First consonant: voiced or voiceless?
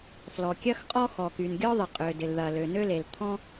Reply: voiceless